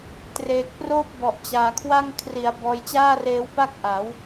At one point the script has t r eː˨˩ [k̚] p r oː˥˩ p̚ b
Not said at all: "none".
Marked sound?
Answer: k̚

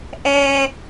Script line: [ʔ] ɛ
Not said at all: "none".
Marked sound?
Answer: ʔ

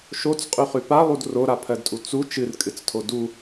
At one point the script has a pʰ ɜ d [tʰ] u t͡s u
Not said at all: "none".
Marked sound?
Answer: tʼ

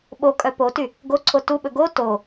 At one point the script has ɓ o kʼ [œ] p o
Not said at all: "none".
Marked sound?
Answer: œ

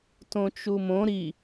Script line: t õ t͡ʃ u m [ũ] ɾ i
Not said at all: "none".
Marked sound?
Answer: õ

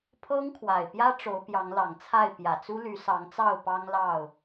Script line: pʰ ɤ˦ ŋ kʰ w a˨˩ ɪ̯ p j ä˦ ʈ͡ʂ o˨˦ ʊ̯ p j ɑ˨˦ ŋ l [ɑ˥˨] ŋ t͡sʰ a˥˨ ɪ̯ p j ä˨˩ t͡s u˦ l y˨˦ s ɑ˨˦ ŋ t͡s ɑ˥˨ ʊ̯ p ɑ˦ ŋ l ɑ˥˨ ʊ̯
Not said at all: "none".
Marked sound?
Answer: ɑ˨˩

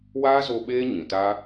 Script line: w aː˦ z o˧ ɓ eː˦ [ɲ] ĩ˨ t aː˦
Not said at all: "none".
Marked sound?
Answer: ɲ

